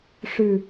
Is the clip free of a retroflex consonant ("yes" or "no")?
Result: no